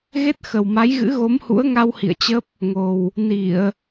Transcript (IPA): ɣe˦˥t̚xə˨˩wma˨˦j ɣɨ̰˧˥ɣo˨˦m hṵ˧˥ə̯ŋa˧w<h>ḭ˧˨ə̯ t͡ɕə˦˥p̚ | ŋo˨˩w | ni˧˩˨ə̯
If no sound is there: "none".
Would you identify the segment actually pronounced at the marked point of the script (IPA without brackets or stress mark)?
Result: h